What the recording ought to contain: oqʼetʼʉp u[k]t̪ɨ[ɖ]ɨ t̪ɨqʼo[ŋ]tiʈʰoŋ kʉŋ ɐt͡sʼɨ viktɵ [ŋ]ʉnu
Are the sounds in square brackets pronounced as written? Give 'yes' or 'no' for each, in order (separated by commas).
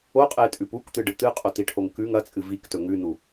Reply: yes, yes, no, yes